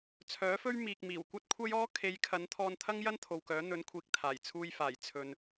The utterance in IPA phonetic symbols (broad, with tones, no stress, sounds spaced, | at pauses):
t͡sʰ œː˨˥ f ɵ˥ ɥ m iː˨ k̚ m iː˨˩ w kʷ ɐ˥ t̚ kʷʰ ɐ˥ j ɔː˥ kʰ e˨˧ j kʰ ɐ˨˧ n t̪ʰ ɔː˧ n t̪ʰ ɐ˥ ŋ j ɐ˥ n t̪ʰ o˨ w k œː˨˥ n̪ ɵ˨˥ n kʷʰ iː˨ k̚ t̪ʰ aː˨˩ j t͡sʰ uː˧ j f aː˨˩ j t͡sʰ ɵ˨ n